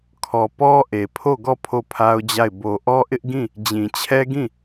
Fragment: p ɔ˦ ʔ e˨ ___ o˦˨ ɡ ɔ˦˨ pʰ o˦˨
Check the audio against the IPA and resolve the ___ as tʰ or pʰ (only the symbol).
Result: pʰ